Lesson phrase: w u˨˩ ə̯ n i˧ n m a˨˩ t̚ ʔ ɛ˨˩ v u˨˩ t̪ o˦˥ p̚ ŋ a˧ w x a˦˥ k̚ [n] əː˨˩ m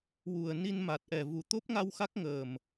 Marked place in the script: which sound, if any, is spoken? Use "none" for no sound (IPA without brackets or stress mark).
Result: ŋ